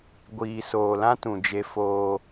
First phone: ɡʷ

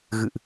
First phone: ɣ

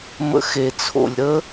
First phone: m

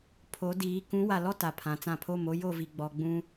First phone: pʰ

